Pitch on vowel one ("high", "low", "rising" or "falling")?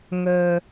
low